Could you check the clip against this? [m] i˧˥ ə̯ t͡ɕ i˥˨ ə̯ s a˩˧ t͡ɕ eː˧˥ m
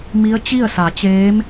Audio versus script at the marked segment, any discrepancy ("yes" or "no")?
no